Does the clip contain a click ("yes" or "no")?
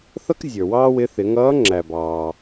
yes